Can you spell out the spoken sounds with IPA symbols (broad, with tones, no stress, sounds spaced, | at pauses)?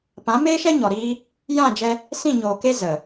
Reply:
p ã˨˦ m eː˦ ʃ ɛ˦ ɲ ɔ˨ ɾ iː˦ | j ã˦˨ d͡ʒ ɛ˧ | s ĩ˦˨ ɲ oː˨ k e˦ z ə˨